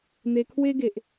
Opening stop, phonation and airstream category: aspirated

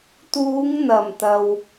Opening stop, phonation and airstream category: plain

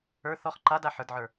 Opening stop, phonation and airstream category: click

